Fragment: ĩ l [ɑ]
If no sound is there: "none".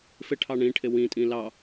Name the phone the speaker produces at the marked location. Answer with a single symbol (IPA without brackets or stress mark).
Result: ɑ